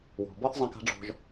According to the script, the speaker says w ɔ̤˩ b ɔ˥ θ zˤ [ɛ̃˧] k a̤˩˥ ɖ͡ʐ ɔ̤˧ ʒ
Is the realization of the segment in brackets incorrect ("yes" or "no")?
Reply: no